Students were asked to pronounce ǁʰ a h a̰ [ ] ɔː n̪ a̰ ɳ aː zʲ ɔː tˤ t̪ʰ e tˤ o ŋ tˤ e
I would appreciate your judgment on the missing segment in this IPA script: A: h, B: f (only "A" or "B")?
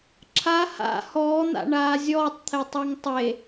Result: A